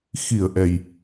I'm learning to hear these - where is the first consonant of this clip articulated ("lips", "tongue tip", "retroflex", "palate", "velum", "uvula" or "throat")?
velum